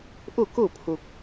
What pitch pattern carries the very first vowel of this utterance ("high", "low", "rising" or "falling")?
falling